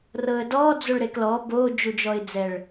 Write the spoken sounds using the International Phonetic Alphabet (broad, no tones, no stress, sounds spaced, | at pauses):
r ɤ ə̯ d ɔ d͡z o ɭ ɾ e k l ɔ b o d͡ʒ u d͡ʒ ɔ ɪ̯ d͡z ɛ ɭ